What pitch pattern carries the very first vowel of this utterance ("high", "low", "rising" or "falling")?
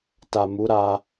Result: low